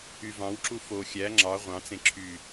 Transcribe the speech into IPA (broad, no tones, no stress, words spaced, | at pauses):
yvɑ̃wǁu fo xʲæ ŋ͡ǁɑ ʁʷɑ̃t͡sẽ ǁʰy